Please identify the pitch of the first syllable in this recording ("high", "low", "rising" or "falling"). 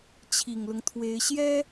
low